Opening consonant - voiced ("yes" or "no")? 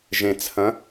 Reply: yes